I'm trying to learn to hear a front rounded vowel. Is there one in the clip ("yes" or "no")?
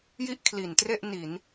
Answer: no